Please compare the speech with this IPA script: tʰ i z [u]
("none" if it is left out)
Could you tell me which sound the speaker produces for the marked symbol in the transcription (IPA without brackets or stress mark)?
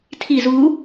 u